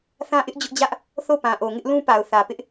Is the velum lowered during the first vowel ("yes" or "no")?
yes